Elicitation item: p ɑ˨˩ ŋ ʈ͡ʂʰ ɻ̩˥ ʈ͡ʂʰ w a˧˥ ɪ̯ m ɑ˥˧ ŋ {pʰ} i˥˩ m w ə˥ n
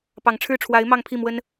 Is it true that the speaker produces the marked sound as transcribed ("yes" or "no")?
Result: yes